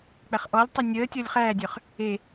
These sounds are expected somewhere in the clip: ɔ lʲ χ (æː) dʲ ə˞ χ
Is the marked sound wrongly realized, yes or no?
no